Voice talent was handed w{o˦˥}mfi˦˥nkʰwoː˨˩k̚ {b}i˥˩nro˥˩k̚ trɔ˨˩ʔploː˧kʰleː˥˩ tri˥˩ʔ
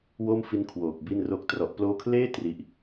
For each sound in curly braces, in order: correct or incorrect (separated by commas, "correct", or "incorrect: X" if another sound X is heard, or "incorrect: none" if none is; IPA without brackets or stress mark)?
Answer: incorrect: o˥˩, correct